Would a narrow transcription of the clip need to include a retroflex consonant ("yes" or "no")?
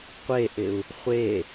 no